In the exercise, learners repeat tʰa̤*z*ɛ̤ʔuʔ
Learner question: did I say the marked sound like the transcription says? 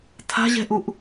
no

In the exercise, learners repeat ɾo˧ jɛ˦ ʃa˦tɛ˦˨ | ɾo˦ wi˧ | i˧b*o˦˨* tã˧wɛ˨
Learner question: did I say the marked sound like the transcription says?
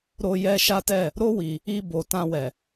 no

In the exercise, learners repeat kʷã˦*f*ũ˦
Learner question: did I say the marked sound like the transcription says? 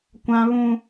no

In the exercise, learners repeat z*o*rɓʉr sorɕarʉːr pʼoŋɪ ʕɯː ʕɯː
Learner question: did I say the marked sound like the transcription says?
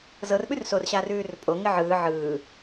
no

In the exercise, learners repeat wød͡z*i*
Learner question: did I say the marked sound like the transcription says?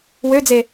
no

